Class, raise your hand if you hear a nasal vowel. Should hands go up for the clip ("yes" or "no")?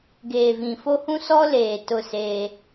yes